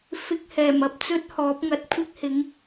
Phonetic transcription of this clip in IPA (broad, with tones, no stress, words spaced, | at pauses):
fɪ˧k̚hɛː˨˩mɐ˧p̚ t͡sɵ˥t̚hɔː˨˥p̚ŋɐ˨t̚ kʷʰɪ˥k̚hɪ˨˥ŋ